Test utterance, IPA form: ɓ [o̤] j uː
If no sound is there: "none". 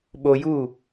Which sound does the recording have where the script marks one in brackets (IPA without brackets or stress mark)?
o